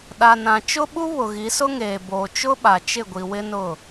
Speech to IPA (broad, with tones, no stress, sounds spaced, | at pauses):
ɗ a˨ n ã˨ t͡ʃ ʊ˦ ɓ u˦ β ʊ˨ ɣ i˨˦ s ʊ˦ ŋ eː˨ b oː˨ t͡ʃ ʊ˦ ɓ a˨ t͡ʃ ɪ˦˨ ɡʷ i˨ w ɪ˦ n ʊ˦˨